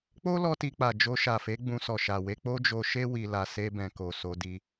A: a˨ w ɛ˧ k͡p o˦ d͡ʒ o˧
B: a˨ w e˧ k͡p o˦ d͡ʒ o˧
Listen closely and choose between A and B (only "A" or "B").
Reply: B